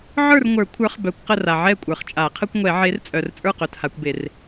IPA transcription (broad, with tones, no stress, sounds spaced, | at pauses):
ʕ ə˞˥˨ r ŋʷ ə˞˨˩˦ kʷʰ ə˞˨˥ χ b œ˨˥ kʷ q ə˥˨ r a˨ ʕ ɛ˥˨ kʷʼ ə˞˨ χ t͡ʃʼ a˨˩˦ qʰ ə˦ kʷ ŋʷ ɛ˨˩˦ ʕ e˨˥ r t͡sʼ œ˨ r t͡sʼ ə˞˥˨ q œ˨ t h a˨˩˦ kʷ b e˨˩˦ r